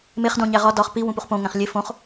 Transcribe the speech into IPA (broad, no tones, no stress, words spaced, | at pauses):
meχdõ ɲæʁɒ dɒχ pi wũpuχpõ ŋæ̃χlʲe fõχ